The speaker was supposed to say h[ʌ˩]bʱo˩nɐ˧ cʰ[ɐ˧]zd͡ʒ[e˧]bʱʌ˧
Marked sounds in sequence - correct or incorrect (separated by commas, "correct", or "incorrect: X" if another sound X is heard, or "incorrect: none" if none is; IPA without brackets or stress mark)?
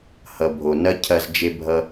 correct, correct, correct